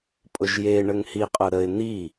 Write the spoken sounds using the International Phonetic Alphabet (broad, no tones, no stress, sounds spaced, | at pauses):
pʼ ʊ ʒ j e ɳ ə ŋ h i qʼ ʊ ɾ ə ɪ̯ n̪ i